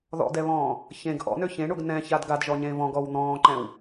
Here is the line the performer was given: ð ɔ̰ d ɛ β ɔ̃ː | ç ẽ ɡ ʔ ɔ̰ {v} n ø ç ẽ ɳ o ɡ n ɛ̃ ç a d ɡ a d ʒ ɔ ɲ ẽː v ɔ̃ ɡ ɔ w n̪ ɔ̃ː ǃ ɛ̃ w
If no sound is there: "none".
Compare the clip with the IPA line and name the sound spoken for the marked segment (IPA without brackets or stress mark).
none